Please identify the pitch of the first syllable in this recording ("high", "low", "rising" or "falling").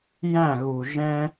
falling